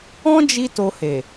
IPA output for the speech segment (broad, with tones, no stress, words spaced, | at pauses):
ɔ̃˦d͡ʒi˧ to˧he˨